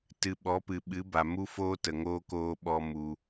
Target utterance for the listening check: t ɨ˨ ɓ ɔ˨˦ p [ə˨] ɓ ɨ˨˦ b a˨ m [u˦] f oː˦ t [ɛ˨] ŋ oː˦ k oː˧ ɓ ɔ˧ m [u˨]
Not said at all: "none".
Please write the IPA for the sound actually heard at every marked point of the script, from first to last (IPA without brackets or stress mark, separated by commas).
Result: ɨ˨, u˦, ə˨, u˧